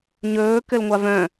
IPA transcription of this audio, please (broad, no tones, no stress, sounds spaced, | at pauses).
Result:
ɲ ɵː k ɘ l ŋʷ a v œ̃